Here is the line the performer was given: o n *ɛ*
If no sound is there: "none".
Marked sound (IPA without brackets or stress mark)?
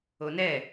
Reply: ɛ